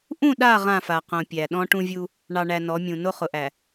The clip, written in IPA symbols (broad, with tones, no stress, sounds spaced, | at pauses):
ʔ ũ˦˨ ɗ a˦˨ ʁ ã˦˨ f a˨ q õ˨ pʲ æ˨ ɗ ɔ̃˦ ʈ ũ˦ vʲ u˦ | ɳ ɑ˨ ɳ æ˨ n ɔ˨˦ mʲ ũ˨ n o˦ χ ʊ˨ ʔ æ˨